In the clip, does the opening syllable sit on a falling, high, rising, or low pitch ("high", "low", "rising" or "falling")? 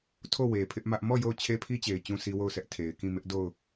falling